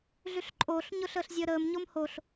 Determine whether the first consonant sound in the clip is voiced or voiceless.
voiced